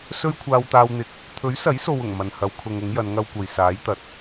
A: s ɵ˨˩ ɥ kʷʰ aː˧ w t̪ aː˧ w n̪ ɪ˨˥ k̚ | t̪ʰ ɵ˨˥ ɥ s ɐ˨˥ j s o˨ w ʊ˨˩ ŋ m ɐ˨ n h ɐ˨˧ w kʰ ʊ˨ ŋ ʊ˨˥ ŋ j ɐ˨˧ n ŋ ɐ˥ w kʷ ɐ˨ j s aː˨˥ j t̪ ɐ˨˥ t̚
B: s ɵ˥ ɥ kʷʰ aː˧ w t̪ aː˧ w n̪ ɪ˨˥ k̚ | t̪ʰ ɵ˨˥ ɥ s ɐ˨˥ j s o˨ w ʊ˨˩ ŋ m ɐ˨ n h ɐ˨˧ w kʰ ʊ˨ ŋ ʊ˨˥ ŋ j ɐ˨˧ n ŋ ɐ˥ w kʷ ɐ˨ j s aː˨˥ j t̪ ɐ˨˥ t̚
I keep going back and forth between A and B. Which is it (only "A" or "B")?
B